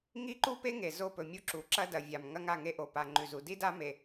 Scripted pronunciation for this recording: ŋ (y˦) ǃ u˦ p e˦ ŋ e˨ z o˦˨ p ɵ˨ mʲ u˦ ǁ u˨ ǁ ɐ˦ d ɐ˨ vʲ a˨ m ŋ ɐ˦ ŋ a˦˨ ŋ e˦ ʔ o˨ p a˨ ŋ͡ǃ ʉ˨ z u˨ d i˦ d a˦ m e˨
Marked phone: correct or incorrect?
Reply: incorrect